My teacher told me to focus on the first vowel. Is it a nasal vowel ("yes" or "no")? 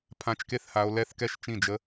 yes